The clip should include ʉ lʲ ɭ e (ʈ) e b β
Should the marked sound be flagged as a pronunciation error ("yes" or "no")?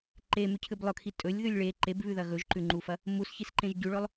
yes